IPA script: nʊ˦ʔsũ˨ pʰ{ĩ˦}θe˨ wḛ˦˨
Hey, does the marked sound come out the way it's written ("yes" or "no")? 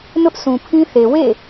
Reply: yes